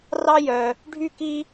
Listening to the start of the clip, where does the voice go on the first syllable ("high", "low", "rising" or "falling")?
high